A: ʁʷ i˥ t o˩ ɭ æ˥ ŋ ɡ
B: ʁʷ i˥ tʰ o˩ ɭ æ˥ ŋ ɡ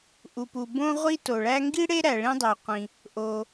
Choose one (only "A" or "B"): A